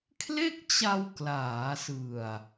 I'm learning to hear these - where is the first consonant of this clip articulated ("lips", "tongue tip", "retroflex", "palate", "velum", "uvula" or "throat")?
velum